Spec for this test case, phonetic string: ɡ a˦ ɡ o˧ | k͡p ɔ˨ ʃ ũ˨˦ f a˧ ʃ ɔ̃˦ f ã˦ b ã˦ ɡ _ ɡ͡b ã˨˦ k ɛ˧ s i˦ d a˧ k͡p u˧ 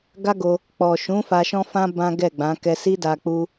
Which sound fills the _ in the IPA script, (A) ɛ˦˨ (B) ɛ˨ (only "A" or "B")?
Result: A